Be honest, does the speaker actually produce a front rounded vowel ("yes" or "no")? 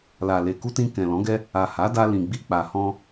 no